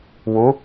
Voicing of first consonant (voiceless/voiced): voiced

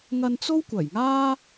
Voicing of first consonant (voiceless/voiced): voiced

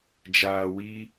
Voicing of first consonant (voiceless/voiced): voiced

